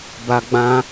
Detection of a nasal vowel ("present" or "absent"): present